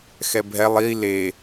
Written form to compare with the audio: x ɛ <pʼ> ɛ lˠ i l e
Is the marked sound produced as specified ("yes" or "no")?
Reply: no